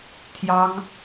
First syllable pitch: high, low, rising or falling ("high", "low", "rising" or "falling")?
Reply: high